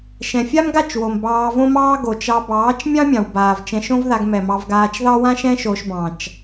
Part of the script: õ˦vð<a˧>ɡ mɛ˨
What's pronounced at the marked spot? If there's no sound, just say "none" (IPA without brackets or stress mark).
a˧